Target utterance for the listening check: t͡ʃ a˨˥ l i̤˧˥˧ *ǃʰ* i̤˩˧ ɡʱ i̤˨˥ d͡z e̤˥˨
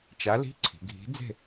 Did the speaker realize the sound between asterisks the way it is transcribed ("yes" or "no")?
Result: no